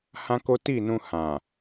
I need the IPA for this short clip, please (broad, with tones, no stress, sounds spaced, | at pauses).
h ã˦ k o˦ t i˦˨ n ũ˧ h ã˨